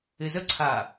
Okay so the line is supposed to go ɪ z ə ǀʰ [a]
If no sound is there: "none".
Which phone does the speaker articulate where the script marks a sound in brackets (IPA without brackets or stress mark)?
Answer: a